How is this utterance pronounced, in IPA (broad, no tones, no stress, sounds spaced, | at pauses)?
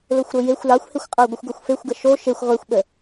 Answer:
l o xʷ ɾ o j e xʷ l ɑ xʷ h e xʷ qʼ ɜ ɡʷ ə xʷ ɡ o xʷ f e xʷ ɡ ə ʃ o ʃ e xʷ ʁʷ e xʷ ɓ ə